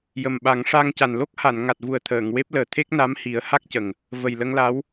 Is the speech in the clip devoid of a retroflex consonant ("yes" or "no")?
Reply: no